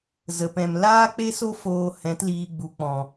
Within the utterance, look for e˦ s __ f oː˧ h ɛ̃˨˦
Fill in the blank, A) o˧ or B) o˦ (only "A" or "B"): B